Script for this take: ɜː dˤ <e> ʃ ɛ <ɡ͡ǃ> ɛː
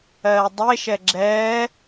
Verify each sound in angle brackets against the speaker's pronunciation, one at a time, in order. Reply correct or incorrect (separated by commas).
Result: correct, incorrect